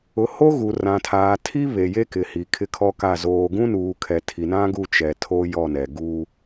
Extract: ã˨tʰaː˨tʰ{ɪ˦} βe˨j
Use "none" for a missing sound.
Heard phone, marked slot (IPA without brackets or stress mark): i˦